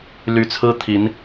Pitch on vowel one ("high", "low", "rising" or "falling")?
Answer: rising